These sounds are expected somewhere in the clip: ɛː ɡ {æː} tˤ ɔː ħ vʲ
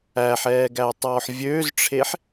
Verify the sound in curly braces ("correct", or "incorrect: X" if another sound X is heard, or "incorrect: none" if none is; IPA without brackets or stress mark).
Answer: correct